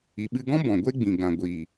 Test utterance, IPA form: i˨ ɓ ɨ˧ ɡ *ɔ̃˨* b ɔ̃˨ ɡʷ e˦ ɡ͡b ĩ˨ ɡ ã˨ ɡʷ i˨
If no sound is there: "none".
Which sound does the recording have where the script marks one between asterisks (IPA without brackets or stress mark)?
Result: ɔ̃˦